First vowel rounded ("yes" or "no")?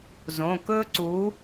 yes